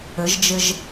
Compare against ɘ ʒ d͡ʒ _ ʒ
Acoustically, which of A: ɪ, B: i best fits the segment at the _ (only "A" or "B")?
A